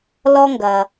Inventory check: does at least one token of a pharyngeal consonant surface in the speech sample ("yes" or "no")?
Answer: no